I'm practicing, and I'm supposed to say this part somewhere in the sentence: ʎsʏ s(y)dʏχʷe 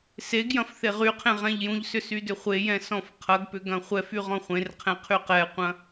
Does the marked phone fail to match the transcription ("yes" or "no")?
no